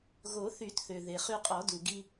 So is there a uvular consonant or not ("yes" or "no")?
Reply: yes